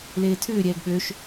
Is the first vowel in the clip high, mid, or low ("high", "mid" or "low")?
mid